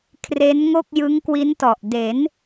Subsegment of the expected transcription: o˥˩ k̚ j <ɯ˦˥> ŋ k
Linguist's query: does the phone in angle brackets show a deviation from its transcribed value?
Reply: no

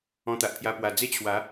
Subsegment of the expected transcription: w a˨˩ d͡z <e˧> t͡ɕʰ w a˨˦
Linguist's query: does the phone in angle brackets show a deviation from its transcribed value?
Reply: yes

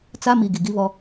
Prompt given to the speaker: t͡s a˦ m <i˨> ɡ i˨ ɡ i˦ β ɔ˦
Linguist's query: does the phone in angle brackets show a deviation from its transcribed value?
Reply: no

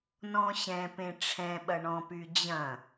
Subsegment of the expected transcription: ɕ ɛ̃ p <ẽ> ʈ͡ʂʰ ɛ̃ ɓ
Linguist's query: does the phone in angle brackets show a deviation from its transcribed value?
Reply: no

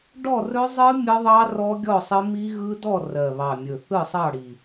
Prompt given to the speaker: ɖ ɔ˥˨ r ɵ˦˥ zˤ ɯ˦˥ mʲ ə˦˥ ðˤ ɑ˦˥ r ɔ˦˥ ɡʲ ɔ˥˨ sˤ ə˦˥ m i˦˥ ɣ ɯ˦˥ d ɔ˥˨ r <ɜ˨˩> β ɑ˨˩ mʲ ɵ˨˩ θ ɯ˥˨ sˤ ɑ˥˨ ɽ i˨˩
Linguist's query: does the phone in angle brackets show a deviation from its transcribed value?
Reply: no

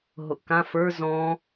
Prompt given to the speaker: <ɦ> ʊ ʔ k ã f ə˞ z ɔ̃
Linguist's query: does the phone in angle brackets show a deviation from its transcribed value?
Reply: no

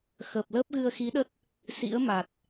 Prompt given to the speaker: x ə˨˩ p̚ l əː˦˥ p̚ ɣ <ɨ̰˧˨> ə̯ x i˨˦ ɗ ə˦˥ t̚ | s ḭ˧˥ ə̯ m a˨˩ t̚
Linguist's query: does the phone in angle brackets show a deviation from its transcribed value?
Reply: yes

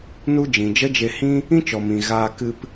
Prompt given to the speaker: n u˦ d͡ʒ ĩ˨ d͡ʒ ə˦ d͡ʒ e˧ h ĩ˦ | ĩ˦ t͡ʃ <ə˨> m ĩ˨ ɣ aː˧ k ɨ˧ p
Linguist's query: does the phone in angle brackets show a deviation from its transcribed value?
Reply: yes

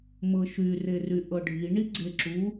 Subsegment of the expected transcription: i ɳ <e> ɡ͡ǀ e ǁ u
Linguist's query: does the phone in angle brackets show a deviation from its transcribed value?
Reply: yes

